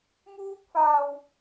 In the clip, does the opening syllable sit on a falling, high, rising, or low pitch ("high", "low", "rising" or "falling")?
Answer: high